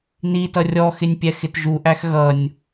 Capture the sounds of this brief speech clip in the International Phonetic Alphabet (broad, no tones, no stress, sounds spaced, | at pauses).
n i t ʌ rʲ ɔ x ɪ nʲ pʲ ɛ x ɪ t ʒ u ʔ æ x ɣ ʌ nʲ